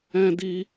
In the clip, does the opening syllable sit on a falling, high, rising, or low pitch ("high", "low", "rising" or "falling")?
high